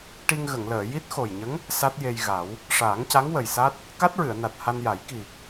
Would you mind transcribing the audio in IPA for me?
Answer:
ʈ i˧ ŋ ɣ ə˨˩˨ ŋ l əː˨˩˨ j i˦˥ t̚ x o˨˩ j ɲ ə˧˥ ŋ | s a˦˥ t̚ j e˧ j ɣ a˨˩˦ w | ʂ aː˨˩˦ ŋ c a˧˥ ŋ w ə˨˩ j s a˦˥ t̚ | k a˦˥ t̚ ɹ ɨ˨˩˨ ə̯ n a˨˩ t̚ h a˧ n j a˨˩˦ j k i˨˩

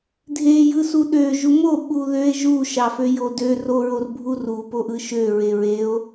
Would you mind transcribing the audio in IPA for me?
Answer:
dʱ e j ɯ s u ɗ ø ʒ u m o ɓ u ð ø e̯ ʒ u ʃ ɑ f ø j o d ø r o ɹ o r bʱ u r u p o ʔ ɯ ʃ ø ɹ e ɹ e o̯

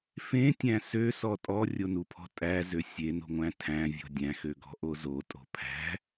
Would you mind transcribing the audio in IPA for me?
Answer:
f ẽ tʲ æ̃ s ø s ɔ tʼ ɔ rʲ o n u pʰ ɔ̤ tʼ æ z ø sʲ e n o̤ ŋʷ æ̃ tʰ æ̃ vʲ ɔ̤ dʲ æ̃ x ø ɡ ɔ̤ ʔ o z o tʼ o̤ pʰ æ̤

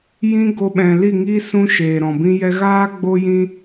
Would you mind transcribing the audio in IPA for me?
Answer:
j ĩ˧ ɡ o˧ ɓ ɛ̃˨ l i˦˨ ŋ i˦ s ũ˧ ʃ eː˨ ɾ ɔ̃˨ b ĩ˧ j ɛ˧ ɣ aː˦ ɡ͡b o˦ j ĩ˦

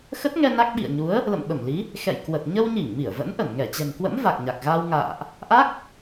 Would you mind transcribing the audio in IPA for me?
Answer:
x ə˦˥ t̚ ŋ ɛ˧ n a˦˥ k̚ ɓ ḭ˧˨ ə̯ ɲ u˨˦ ə̯ | l ə̰˧˨ m ɓ ə˧˩ m l i˨˦ | x ɛ̰˧˨ j k w ə˨˩ t̚ ɲ ə˧ w ɲ i˧˩ ŋ m i˧˩ ə̯ v ə̰˧˥ n ʔ ə˧˩ n ŋ ɛ˧˩ t͡ɕ ɛ̤˨˩ ŋ k w ə̰˧˥ m v a˨˩ k̚ ɲ a˨˩ k̚ ɣ a˧ w ŋ a̰ː˧˨ ʔ | ʔ a˦˥ k̚

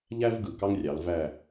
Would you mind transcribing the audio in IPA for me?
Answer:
ʎ æ˥ v ɡ ɯ˨˩ k ɑ˥ ŋ rʲ ɑ˩˧ l v æ˦˨

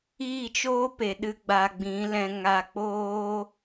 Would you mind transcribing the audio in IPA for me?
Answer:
iː˦˨ t͡ʃ oː˦ p e˨ ɗ ɨ˧ ɡ͡b a˨ ɡ͡b ĩ˨˦ l ɛ̃˧ ŋ a˧ k͡p oː˦

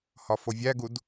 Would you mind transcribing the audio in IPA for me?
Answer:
h ɒ f o vʲ æ ɡ u d

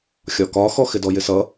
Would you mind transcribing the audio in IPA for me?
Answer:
xʲ ɒ k ɒ x ɔ x ɪ d ɔ j ɪ s ʌ

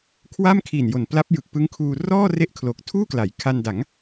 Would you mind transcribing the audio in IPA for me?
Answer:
kʰ w a˥˩ m kʰ i˨˩ n j o˨˩ n p l a˦˥ p̚ j ɯ˨˩ k̚ p ɯ˦˥ ŋ kʰ uː˧ r ɔː˥˩ r e˦˥ ʔ kʰ l o˨˩ k̚ tʰ uː˥˩ k l a˩˦ j kʰ a˧ n d a˩˦ ŋ

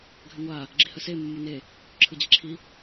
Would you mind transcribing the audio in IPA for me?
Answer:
ɡʱ ʏ ŋʷ a | ɡ͡ǁ i h ə s e mː ɯ n e | ǁʰ ɯ d͡ʑ i ǁʰ i

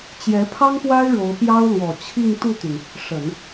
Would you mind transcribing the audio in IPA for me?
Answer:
t͡ɕ j ɛ˧˥ pʰ ɑ˥ ŋ p w a˥ ɪ̯ ɻ o˧˥ ʊ̯ p j ɑ˥ ʊ̯ l w ɔ˨˩ t͡ɕʰ i˥˧ ŋ t̪ u˥˩ t̪ y˩ n | ʂ ə˨˩˦ n

